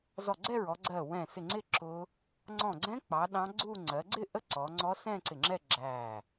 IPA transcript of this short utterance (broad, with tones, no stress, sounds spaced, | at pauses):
z ɔ˧˩ ɡ͡ǀ ɛ˥˧ ɹ ɔ˩˧ ɡ͡ǀ ɜ˧˩ w ɛ̃˧˩ s ɪ˧˩ ŋ͡ǀ ɪ˥˧ ǁ ʊ˦˥ | ŋ͡ǀ ɔ̃˧˩ ɡ͡ǀ ɛ̃˦˥ k͡p ɑ˩˧ ɗ ɑ̃˦˥ ɡ͡ǀ u˥˧ ŋ͡ǀ ɜ˩˧ ɡ͡ǀ ɪ˥˧ ʔ ə˦˥ ǀ ɔ˩˧ ŋ͡ǀ ɔ˦˥ s ɛ̃˥˧ ǀ ɪ˧˩ ŋ͡ǁ ɛ˥˧ ɡ͡ǁ æ˧˩